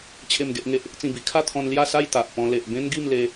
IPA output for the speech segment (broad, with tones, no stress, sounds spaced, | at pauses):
t͡ɕʰ e˥˧ m ɡ e˦ ʔ ŋ e˦ ʔ | t͡s ĩ˥˧ b i˧ kʰ a˥˧ t̪ʰ ɔ̃˧ n l j a˥˧ s a˥˧ j t̪ a˨ ʔ p ɔ̃˧ l e˨ ʔ b ẽ˦ n ɡ i˥˧ m l e˧